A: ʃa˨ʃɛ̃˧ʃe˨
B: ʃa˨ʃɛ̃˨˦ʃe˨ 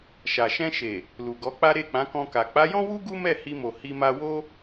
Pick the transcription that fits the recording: A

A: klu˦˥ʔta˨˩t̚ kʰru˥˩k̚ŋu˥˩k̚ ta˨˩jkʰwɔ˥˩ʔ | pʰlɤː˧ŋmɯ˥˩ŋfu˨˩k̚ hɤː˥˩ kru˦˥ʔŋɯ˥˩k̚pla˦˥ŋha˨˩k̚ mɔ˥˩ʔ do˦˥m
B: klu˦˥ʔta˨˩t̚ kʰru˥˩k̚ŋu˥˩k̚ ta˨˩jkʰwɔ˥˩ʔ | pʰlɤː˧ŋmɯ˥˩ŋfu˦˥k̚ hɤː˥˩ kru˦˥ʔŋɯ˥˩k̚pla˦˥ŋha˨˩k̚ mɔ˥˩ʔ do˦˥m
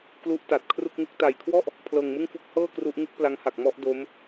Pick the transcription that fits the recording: B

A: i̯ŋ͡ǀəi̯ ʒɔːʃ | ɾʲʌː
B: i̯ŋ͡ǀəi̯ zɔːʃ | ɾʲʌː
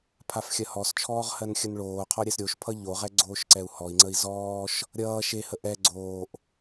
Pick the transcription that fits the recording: B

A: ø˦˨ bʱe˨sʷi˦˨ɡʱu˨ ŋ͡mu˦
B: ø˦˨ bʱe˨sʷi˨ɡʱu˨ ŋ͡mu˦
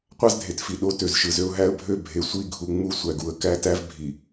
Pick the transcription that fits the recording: A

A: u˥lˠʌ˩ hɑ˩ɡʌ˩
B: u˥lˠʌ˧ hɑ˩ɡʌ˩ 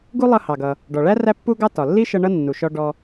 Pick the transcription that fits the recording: B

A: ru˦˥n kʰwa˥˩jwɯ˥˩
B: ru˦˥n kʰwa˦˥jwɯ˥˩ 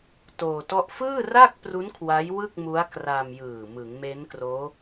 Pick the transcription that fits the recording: B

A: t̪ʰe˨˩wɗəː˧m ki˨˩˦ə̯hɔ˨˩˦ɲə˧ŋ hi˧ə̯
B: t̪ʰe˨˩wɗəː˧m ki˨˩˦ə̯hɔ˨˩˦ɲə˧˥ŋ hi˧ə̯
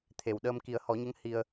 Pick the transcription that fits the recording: B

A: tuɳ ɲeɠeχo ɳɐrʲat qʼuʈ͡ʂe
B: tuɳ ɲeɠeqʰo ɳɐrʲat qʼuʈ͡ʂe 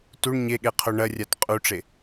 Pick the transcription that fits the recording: B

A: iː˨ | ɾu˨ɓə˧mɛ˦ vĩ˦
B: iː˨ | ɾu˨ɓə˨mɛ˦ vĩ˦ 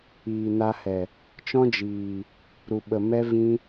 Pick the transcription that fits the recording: B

